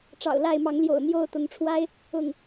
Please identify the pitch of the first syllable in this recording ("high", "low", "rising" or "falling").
low